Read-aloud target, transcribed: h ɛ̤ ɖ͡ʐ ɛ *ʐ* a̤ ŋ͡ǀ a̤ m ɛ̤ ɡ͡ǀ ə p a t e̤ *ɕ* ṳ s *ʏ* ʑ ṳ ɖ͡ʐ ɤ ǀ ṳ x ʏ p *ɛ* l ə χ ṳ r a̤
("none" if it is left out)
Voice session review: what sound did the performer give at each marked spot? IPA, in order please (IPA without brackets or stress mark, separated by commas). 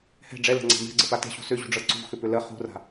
l, ɕ, ʏ, ʏ